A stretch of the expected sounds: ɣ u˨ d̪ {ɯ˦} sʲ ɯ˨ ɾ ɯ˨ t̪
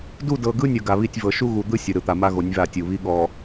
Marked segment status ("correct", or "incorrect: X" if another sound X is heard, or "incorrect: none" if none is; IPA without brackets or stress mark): correct